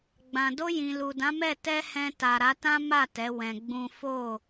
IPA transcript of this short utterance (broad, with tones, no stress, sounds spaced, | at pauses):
ɡ͡b ã˨ d o˧ j ĩ˨ l u˨ d ã˨˦ m ɛ˦˨ t ɛ˧ h ɛ̃˧ t a˨ ɾ a˨˦ t ã˦ m a˦˨ t ɛ˨˦ w ɛ̃˧ ɡ͡b ũ˦ f o˦˨